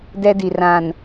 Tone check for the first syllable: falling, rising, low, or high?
high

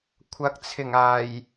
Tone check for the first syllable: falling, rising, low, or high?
rising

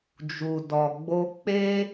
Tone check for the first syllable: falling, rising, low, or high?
low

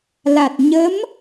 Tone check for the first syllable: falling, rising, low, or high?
low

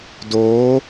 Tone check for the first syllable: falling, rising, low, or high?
rising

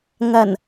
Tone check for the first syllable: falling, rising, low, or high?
low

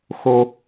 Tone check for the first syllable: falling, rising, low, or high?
high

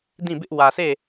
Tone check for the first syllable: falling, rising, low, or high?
falling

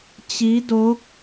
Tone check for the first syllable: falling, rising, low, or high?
rising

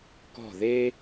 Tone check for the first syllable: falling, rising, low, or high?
falling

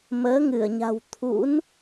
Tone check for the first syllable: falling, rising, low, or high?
rising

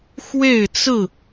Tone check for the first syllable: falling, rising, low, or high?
falling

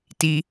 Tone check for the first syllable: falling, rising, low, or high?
low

